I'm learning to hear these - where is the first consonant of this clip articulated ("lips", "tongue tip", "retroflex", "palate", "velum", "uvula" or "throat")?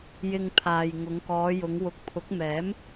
palate